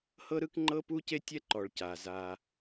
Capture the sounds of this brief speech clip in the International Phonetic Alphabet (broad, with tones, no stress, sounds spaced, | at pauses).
h ɤ˦ ɾ ɯ˦ k ŋ͡ǃ ɤ˦ p u˦ c e˦ tʲ ɛ˦ ǃ ɔ˨ ɭ c a˨ z a˦